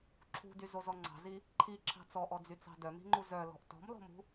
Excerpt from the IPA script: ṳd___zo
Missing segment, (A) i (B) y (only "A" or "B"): B